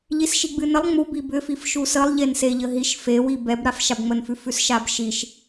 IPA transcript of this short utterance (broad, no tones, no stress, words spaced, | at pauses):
ʎisʃiɡ͡bɨnəlˠ ŋ͡mubi bʏfif ʃusəlˠʎen seʎəɦiʃ fe wibɛb ɾafʃabŋ͡mənfʉ fʉsʃabʃiʃ